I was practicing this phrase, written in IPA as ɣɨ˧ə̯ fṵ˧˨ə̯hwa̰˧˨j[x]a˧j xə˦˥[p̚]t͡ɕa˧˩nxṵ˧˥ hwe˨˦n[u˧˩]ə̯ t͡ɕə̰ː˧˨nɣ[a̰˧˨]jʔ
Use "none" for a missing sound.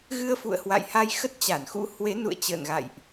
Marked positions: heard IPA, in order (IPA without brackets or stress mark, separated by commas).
h, t̚, ṵ˧˨, a̰˧˨